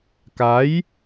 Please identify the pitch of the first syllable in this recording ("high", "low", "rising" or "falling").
rising